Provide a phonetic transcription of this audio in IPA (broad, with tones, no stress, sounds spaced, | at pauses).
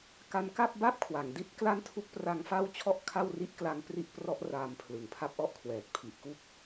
k a˦˥ n k a˥˩ p̚ b a˥˩ p̚ kʰ w a˩˦ ŋ d i˥˩ t̚ k l a˥˩ n tʰ u˦˥ k̚ p r a˦˥ ŋ f a˥˩ w t͡ɕʰ ɔ˥˩ ʔ kʰ a˥˩ w r i˥˩ ʔ k l a˦˥ ŋ p r i˦˥ ʔ p r ɔ˦˥ ʔ r aː˧ m pʰ l ɯ˨˩ ŋ pʰ a˦˥ p̚ ʔ ɔ˦˥ ʔ kʰ w ɛː˨˩ t̚ pʰ i˨˩ ʔ k u˦˥ k̚